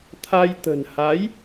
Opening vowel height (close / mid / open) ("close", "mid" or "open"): open